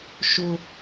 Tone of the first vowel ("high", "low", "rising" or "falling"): high